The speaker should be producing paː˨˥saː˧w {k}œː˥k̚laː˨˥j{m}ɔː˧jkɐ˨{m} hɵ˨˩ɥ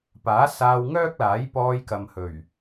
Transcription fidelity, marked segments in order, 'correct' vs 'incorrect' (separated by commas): incorrect, incorrect, correct